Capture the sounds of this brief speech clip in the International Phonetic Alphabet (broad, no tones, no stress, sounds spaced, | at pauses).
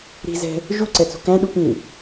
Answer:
ɾ i̤ z ɛ̤ | ʒ u ǀ ɛ t͡s ṳ k æ̃ ɗ u p ĩ